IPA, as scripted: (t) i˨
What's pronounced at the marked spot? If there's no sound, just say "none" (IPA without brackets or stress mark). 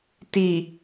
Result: t